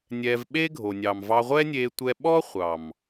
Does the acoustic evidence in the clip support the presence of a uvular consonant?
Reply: yes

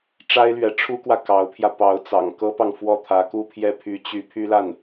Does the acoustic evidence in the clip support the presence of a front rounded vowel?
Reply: yes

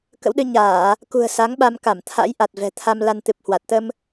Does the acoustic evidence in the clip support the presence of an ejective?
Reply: no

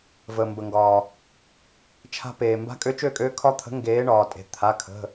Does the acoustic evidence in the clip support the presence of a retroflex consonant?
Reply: yes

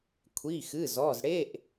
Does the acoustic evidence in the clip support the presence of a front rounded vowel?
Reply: no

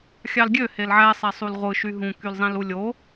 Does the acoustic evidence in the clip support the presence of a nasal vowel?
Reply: yes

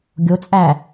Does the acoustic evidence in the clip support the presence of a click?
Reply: no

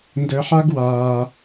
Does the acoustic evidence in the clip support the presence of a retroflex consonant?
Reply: no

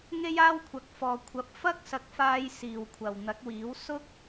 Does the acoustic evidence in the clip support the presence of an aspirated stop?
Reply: yes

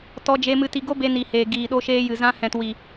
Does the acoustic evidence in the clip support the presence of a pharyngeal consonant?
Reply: no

